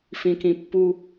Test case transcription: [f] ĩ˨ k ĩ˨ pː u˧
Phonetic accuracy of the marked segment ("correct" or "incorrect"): correct